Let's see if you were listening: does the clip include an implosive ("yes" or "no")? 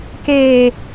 no